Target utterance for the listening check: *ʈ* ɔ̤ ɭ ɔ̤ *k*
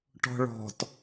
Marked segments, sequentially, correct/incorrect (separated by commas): correct, incorrect